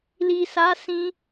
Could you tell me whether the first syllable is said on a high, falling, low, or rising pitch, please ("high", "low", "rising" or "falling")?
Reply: low